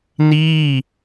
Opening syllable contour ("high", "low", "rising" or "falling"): falling